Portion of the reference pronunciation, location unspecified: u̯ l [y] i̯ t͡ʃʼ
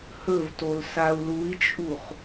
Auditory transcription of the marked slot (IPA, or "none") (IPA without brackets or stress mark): u